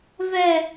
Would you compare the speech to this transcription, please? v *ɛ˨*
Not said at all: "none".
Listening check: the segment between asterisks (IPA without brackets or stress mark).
ɛ˨